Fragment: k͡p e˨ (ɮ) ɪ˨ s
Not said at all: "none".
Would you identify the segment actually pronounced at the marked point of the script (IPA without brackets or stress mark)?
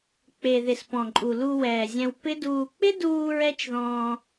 ð